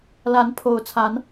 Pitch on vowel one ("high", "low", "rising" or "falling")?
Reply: rising